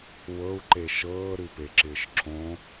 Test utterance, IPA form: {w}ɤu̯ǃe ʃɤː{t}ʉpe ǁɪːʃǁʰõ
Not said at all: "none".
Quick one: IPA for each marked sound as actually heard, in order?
w, ɾ

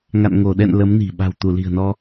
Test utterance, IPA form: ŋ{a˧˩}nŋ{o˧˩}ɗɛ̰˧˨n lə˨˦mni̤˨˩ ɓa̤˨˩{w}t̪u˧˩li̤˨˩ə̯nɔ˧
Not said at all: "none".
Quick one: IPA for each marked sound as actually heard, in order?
a̰˧˨, o˧˩, w

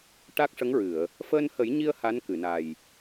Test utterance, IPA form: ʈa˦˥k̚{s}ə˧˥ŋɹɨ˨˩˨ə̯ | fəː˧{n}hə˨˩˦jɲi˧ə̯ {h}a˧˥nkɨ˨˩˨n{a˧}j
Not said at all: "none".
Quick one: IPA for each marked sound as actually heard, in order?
ʂ, n, h, a˨˩

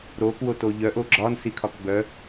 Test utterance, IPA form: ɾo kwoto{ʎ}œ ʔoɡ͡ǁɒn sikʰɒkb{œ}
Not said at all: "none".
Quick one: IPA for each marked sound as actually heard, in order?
ʎ, œ

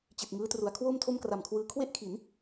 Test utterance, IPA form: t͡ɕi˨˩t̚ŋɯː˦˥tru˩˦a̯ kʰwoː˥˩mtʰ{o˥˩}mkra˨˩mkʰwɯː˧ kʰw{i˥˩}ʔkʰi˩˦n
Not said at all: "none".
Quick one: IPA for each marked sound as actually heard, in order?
o˥˩, e˥˩

